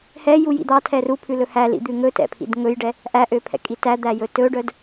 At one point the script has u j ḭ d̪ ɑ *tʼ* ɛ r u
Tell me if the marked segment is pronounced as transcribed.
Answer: no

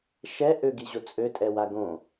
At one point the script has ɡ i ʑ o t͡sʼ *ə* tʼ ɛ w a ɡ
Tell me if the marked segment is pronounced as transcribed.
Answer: no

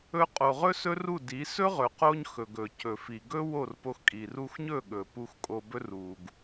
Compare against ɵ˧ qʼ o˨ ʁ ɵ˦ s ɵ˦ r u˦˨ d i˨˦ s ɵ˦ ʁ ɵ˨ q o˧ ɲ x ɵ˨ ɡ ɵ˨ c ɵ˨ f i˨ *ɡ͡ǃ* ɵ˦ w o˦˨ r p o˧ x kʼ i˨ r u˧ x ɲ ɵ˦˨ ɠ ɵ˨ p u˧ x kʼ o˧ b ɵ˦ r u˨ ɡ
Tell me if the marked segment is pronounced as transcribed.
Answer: no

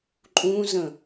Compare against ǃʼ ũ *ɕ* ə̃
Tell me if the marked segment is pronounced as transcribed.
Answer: no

